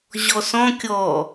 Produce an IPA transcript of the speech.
ʑ ɔ s ɔ̃ kʲ ɔ

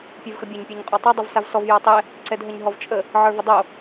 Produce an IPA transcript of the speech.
pʲ ə˞ v x ə bʲ a ɲ pʲ ə˞ ɲ qʼ ɔ tˤ o dˤ o v s a v s ɔ v j ɔ tˤ ɛ | ǀ ɛ d ɦ ə ɲ ɦ ɔ v t͡ʃʼ ə | ʕ ə˞ v ə dˤ o

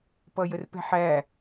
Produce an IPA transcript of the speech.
p ʌ j ə r p ɛ̤ ħ æ

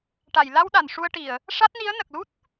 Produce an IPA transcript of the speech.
ʈ a˨˩˨ j l a˧ w ɗ a˨˩˨ n ʂ u˧ ə̯ ʈ i˨˩˨ ə̯ | ʂ a˦˥ t̚ n i˧˥ ə̯ n ə˨˩ k̚ l u˦˥ t̚

